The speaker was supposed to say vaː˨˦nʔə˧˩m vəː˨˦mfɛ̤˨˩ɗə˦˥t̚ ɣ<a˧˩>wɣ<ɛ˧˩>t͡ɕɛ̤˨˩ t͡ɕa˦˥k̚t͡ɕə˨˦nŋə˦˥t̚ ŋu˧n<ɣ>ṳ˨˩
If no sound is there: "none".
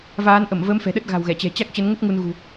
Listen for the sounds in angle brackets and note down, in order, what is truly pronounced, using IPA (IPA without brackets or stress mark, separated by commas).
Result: a̤˨˩, ɛ˧˩, ɣ